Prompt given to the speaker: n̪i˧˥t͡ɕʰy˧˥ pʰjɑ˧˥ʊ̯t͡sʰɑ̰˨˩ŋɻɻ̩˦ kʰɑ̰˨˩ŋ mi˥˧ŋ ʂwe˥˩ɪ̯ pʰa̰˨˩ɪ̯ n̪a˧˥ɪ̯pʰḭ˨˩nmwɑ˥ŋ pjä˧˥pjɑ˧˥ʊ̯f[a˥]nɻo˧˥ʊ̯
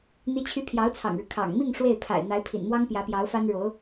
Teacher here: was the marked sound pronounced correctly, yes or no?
yes